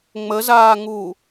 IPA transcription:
ŋ͡m ə z aː ŋ u

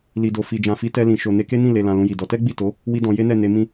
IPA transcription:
l i˨ d o˨ f i˨ d͡ʒ ã˨ f i˨˦ t ɛ˧ l ĩ˨ ʃ o˨ n e˧ k e˦ n ĩ˦˨ l e˨ l ã˨ l ũ˧ j i˨ d ɔ˧ t ɛ˦ ɡ͡b i˦˨ t o˨˦ | w i˦ d ɔ̃˧ j e˦ n ɛ˦˨ n e˧ m ĩ˦

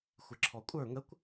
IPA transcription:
xʷ ɪ ǁʰ ɔ kʷʼ ə˞ ŋ ə kʷ

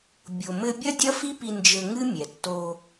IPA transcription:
bʲ o˨ m ɘ˧ bʲ ɐ˦ dʲ ɐ˦ f i˦ p i˧ n d͡ʒ ɘ˧ ŋ ɨ˦ mʲ ɛ˨ tː o˧

